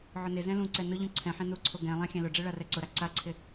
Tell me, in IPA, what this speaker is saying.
ʕʊnɪzɛ̃ lũǀɛ nʊ ʎũǀʰɛ̃ħẽ nuǀʰo ɡɛ̃lˠã xʲɛ̃lʊɖ͡ʐe ɭarɛǀʊɾa ǀaǀʰɪ

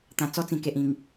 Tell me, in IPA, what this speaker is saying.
t̪ã˨˩ t͡sɔ˧t͡sĩ˨˩ke˨ʔ ĩ˨˩ŋ

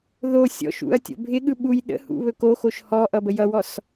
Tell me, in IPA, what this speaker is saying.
ðo sʲɔ̰ʃṵɐ̯ tʲo̰bʱɪɠɯ ɓuj ɗə̰hṵ βɵkoxoʃ hɔʔʌ bəjʌwɔs

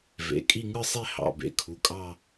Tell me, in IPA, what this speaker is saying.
vḛ˩˧˩kʼi˥˧ ŋɯ˥˧sˤe˥˧hɑ̰˩˧˩ bḛ˩˧˩kʰu˩˧˩kʼɑ˥˧

